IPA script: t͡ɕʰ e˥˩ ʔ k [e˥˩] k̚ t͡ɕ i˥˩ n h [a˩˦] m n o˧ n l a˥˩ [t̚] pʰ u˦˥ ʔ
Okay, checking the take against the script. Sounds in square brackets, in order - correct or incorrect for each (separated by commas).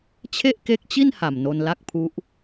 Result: incorrect, incorrect, incorrect